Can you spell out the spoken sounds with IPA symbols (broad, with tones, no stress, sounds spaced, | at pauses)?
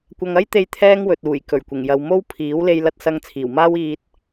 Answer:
kʷ ɐ˧ ŋ ɐ˥ j t̪ e˧ j t̪ʰ ɛː˥ ŋ w ɵ˨ t̚ uː˨˩ j k ɵ˨˩ ɥ kʷ ɪ˨˩ ŋ j ɐ˨ w m o˥ w pʰ iː˨˥ w l e˧ j l ɐ˧ t̚ s ɐ˧ ŋ t͡sʰ iː˨˩ w m aː˥ w iː˧ t̚